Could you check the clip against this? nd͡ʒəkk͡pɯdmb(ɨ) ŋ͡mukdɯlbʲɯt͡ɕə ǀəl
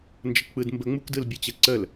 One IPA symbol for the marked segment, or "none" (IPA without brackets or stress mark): ə